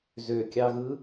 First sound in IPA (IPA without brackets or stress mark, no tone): z